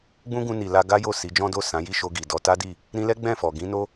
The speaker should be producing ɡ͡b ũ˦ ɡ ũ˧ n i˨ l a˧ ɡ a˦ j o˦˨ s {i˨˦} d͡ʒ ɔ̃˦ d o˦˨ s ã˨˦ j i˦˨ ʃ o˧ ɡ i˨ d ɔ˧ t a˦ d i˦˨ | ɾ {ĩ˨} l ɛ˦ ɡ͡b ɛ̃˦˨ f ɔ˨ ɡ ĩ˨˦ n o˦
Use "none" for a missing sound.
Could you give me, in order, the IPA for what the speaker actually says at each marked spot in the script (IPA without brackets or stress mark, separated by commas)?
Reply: i˨˦, ĩ˧